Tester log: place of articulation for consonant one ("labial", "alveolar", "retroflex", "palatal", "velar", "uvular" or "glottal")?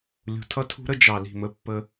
alveolar